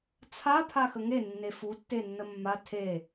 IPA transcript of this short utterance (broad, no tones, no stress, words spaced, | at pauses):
t͡sʰa pʰaxəŋe nːefu tːenːəmːa tʰe